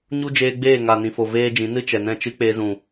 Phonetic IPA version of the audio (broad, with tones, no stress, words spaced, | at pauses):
ɲu˦d͡ʒeː˧ɡ͡beː˦˨ ŋaː˨nĩ˨fo˨ veː˧ d͡ʒĩ˨˦ nɨ˦t͡ʃɛ˨nɛ̃˦˨t͡ʃɨ˦ k͡peː˧zũ˨